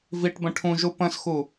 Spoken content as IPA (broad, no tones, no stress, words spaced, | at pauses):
viʈbə̃ ʈʰũʒu pə̃sxu